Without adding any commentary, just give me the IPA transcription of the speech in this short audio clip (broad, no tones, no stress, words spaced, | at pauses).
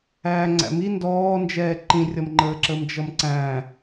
æːŋ͡ǀæ̰mi ndɔːnd͡ʒɛː ǃĩrʲʌmŋ͡ǃəːǁəːm d͡ʒʌmǀæ̃